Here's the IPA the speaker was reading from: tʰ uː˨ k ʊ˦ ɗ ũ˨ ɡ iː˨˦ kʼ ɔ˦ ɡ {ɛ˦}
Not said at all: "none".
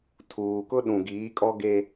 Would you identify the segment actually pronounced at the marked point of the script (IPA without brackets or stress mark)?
e˦